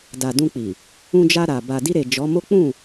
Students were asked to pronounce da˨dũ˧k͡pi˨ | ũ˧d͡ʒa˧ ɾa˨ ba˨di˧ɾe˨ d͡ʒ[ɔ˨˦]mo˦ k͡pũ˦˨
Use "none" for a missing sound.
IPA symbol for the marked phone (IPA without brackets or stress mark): ɔ˨˦